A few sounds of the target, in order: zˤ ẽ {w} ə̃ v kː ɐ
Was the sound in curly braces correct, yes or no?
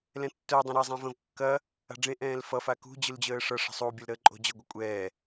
no